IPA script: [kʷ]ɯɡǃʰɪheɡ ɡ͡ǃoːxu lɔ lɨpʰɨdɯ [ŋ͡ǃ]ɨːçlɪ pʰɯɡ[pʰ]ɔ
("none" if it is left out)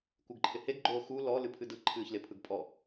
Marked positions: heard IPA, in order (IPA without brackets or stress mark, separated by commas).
kʷ, ǃʰ, pʼ